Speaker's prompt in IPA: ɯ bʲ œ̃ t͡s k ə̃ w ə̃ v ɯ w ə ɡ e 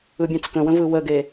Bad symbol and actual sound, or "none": none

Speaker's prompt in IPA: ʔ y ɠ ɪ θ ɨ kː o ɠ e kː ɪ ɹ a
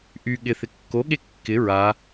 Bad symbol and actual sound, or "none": ɨ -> ɪ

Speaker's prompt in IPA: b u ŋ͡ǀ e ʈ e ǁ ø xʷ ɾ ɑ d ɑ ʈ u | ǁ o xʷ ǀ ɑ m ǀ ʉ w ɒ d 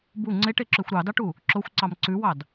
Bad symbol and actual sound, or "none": ɒ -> ɑ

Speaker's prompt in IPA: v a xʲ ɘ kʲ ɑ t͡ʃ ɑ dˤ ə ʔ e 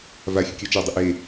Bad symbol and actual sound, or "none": none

